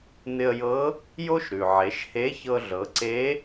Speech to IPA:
n̪ ɪ˧ ə̯ j ɤ˧˥ | j o˥ ʃ ɾ ʉ˩ ʕ e˩˧ ʃ h e˧˥ ç ɤ˧ ɮ ɤ˩˧ ǀ e˧˥

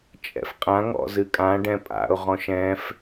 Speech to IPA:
t͡ʃʼ ɛ̰ f qʼ ã ŋ ɔ̰ z ɨ kʼ ã ɖ ɛ̃ pʼ a̰ ʊ̯ ʁ ɔ̃ ʃ ɛ̃ f

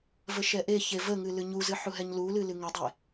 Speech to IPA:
v ə ʃ ɛ ʔ e ç e v ə ŋ ɨ l ɨ ɲ u z ɨ ħ u ɦ ɛ ɲ l u l ɨ l ɨ ŋ ə dˤ e

